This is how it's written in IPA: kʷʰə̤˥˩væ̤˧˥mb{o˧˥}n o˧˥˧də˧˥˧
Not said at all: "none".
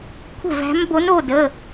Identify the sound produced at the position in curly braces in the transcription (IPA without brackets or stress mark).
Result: o˧˥